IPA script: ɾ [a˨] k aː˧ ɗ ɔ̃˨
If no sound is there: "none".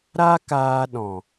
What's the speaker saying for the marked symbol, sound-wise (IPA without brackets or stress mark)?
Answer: a˦